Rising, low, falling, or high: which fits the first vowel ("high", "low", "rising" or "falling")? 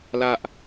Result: high